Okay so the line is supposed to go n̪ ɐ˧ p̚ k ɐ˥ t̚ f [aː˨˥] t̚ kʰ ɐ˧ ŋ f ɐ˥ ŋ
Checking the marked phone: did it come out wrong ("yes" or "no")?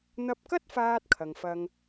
yes